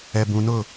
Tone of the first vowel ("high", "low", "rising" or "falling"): low